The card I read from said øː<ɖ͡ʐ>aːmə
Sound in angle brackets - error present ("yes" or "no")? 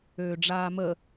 no